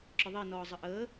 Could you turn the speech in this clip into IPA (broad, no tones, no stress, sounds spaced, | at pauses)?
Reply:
ǁ ʊ ðˤ i n ɔː zˤ ə ʔ əː